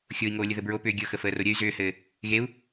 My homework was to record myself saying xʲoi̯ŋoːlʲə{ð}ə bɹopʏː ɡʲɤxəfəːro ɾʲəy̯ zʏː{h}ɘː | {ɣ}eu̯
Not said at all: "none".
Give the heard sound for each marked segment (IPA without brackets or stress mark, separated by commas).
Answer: ð, h, ɣ